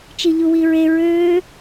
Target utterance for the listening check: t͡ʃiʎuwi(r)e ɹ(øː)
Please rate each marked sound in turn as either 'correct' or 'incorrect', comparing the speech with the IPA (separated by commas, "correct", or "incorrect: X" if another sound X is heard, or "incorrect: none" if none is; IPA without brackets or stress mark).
incorrect: ɹ, correct